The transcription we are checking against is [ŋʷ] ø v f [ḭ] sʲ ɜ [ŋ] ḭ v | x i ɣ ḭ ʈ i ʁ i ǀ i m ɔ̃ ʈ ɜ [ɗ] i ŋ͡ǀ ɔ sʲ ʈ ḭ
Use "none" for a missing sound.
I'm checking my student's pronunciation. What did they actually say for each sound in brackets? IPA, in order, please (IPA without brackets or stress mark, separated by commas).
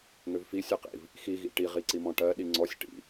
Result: ŋ, i, q, ɗ